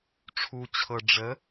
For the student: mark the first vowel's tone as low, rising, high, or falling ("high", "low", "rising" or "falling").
low